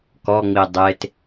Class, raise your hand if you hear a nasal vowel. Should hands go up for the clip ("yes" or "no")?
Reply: no